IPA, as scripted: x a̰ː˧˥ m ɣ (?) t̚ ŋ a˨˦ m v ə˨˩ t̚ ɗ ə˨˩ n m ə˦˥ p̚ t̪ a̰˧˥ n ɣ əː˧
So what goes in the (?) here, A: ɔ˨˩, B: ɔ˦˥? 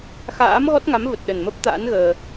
B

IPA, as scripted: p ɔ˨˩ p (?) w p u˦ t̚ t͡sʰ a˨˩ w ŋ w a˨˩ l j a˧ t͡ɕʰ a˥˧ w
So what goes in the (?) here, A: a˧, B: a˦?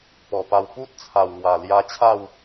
A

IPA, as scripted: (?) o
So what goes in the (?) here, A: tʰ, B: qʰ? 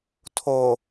A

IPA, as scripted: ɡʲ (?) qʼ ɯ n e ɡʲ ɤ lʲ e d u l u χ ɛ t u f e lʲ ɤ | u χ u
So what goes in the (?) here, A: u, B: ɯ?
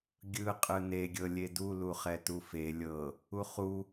B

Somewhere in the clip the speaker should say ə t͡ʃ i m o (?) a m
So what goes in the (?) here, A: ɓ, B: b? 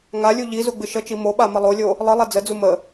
A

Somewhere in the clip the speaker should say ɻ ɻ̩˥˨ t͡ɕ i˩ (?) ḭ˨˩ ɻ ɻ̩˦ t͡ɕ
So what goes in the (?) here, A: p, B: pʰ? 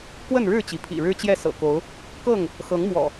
B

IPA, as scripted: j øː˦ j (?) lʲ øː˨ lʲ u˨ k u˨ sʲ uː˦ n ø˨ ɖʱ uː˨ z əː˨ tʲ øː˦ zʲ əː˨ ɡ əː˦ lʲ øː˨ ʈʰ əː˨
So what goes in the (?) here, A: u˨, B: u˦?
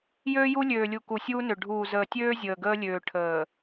B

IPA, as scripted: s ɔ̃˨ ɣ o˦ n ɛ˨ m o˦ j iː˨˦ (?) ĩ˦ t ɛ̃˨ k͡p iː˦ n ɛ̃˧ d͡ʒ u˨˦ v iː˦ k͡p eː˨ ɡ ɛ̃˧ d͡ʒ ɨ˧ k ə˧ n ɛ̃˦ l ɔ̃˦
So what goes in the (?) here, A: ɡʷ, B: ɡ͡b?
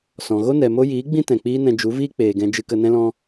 B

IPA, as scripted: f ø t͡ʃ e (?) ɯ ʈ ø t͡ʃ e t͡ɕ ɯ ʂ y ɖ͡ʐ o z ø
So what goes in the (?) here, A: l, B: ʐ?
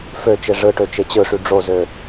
B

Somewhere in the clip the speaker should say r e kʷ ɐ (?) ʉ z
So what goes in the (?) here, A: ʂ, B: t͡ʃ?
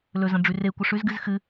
A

